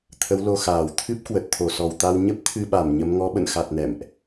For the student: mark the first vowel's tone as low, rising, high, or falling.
rising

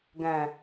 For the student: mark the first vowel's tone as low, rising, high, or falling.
low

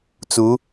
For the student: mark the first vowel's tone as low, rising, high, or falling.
rising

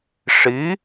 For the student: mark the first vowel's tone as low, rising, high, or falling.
rising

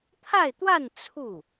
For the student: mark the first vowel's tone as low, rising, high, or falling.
falling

